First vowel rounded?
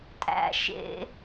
no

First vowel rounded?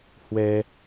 no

